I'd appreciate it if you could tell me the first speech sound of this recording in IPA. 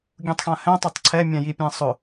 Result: ɡʲ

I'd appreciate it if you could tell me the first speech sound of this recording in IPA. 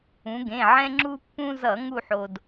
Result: ũ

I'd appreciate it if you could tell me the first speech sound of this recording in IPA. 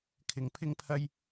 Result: kʰ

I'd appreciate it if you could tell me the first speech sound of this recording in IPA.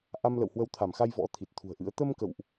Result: ʔ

